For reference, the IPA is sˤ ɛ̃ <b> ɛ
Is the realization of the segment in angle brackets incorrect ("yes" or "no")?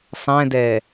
yes